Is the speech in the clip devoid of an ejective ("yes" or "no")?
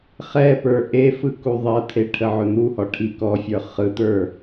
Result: yes